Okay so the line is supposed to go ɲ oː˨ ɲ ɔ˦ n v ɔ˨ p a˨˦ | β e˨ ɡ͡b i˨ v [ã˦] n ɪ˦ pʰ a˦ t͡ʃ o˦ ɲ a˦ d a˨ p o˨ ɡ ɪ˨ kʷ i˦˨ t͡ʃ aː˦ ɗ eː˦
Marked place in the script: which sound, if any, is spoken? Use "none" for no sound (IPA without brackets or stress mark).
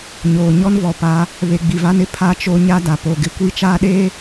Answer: a˦